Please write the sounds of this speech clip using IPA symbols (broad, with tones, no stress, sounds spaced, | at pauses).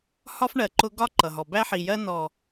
h ɒ˦ f ɳ ɜ˨ ǃ ʊ˦ ɡ ɒ˦ ǃ ʌ˨ ɦ ɔ˨ b æ˦ ħ i˨ j ɜ˦ n ɔ˨